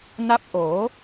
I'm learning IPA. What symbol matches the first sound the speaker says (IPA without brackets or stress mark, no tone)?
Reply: n